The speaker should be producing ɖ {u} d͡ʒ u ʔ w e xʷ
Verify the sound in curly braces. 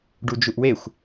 correct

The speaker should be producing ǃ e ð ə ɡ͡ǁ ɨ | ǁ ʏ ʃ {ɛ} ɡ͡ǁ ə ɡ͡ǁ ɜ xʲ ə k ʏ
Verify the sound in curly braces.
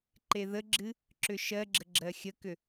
incorrect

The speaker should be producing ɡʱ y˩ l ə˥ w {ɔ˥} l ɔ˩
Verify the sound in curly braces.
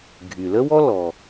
correct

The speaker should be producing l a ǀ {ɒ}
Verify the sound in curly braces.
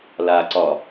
correct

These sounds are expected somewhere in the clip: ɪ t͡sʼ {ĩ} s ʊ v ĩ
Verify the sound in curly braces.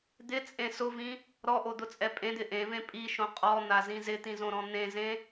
incorrect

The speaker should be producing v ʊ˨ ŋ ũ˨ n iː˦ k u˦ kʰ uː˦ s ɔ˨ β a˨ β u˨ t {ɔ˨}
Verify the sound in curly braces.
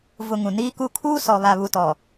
correct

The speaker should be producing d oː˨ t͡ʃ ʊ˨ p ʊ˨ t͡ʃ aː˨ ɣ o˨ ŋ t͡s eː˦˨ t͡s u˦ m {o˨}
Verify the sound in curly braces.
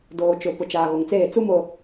correct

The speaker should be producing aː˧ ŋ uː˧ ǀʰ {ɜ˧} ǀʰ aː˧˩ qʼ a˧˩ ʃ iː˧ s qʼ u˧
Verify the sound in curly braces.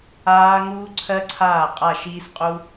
correct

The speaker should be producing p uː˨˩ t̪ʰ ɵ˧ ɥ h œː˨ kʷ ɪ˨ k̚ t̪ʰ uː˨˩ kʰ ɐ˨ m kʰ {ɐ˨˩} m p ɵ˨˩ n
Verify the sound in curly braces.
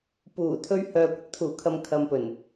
incorrect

